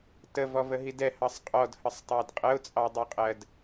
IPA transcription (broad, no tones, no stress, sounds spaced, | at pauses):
t ə v ɔ v ə ɦ i d ɛ h ɑ sˤ qʼ ɔ d h ə sˤ tˤ æ d qʼ ə ʊ̯ t͡sʼ ɑ dˤ i qʼ ɜ d